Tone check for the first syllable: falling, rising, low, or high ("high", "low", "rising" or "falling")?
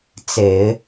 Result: low